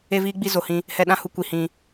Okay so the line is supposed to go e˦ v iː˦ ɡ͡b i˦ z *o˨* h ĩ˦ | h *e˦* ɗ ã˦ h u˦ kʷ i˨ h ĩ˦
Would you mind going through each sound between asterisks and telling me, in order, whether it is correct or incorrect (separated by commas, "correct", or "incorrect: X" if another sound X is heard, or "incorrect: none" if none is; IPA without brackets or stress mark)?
correct, incorrect: ɛ˦